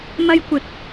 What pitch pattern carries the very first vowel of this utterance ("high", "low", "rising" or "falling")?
high